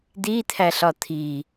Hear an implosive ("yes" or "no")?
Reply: no